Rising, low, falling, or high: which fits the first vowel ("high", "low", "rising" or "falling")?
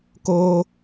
high